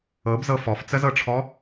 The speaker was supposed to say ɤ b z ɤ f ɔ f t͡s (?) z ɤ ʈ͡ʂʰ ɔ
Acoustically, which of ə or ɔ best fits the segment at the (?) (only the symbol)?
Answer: ə